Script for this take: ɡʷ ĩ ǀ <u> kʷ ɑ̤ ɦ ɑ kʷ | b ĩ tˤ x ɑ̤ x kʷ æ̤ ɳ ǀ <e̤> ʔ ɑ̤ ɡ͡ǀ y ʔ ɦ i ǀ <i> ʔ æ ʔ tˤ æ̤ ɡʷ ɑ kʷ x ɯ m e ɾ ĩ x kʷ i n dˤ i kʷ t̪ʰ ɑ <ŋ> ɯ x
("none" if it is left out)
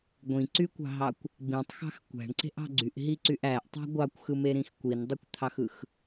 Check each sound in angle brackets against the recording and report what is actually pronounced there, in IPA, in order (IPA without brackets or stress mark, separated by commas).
y, e̤, y, x